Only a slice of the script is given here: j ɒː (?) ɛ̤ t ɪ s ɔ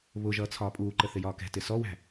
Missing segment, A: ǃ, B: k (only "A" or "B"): B